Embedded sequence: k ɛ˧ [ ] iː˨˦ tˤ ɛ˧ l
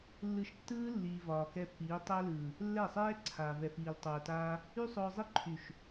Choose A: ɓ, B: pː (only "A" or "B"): B